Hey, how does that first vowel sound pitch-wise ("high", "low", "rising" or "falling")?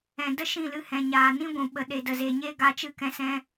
low